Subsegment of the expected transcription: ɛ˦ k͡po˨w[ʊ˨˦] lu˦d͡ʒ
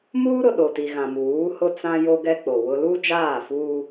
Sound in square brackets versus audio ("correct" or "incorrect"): incorrect